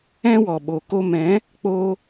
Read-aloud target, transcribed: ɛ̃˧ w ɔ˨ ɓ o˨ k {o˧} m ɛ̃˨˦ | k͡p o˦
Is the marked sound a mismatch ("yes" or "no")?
no